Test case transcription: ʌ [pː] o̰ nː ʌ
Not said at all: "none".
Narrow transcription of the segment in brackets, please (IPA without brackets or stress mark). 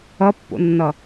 pː